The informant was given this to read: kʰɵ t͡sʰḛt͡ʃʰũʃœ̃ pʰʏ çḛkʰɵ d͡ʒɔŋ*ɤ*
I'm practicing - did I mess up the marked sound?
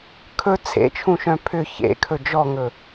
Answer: yes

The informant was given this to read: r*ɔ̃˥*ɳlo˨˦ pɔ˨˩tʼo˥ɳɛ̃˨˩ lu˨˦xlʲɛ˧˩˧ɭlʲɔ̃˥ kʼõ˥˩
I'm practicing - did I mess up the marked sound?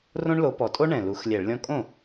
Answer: yes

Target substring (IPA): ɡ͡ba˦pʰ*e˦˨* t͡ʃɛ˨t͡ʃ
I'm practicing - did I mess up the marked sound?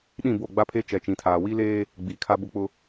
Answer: yes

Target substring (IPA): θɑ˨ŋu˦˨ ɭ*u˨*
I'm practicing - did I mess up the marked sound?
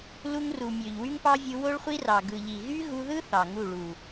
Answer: no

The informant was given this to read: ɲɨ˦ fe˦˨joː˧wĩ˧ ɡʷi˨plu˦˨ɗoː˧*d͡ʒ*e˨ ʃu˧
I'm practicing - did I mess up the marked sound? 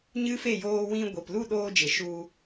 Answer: no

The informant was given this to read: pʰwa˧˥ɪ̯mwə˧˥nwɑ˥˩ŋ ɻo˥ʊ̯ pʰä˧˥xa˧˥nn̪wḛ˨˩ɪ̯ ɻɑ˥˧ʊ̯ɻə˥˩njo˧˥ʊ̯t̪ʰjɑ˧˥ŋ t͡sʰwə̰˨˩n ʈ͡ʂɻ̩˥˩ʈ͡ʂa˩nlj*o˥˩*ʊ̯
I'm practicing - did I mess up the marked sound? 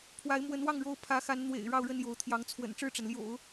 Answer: yes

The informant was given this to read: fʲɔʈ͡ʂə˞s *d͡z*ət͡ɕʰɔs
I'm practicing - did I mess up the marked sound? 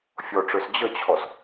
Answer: yes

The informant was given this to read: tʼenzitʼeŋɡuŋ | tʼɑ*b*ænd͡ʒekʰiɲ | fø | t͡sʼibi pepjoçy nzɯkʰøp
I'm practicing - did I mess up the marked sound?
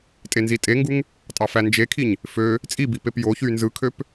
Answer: yes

